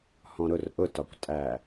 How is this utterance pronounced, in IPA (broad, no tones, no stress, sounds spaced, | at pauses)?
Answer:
h ɔ̃ ɾ ʊ r ʔ ʊ t ɒ kʷ tʼ æ